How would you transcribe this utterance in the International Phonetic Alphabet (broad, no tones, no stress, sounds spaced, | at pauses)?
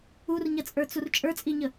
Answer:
u r ɲ ɐ t͡sʼ ə˞ t͡s u r t͡ʃʼ ə˞ t͡sʼ i ɲ ə